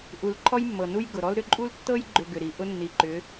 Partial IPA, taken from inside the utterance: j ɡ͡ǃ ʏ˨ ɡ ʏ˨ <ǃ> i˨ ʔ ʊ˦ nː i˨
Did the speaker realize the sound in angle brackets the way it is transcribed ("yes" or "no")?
no